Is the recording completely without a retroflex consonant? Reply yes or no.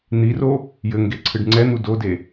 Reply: no